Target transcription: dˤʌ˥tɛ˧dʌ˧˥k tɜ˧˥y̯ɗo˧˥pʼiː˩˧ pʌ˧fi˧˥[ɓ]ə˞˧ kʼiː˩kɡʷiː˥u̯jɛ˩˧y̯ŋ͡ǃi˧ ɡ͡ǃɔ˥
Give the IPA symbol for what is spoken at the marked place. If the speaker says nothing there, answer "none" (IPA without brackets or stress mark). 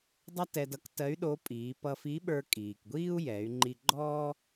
ɓ